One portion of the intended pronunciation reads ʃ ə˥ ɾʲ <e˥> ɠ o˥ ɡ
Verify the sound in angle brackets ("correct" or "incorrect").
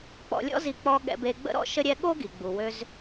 incorrect